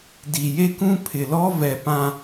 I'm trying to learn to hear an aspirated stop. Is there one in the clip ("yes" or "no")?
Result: yes